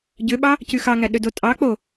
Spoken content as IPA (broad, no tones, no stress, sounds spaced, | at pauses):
ɟ ø ɓ ɑ | c y x ɑ ŋ æ ɗ ø d o tʼ ɑ k͡p o